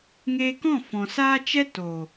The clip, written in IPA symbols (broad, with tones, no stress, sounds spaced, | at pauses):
ŋ eː˧ k ɔ̃˦˨ f ɔ̃˨ s aː˦ t͡ʃ ɛ˦ t o˨